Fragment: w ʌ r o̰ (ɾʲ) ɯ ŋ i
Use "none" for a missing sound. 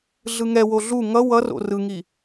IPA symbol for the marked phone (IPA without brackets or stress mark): r